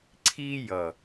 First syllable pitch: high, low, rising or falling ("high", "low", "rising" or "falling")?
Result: high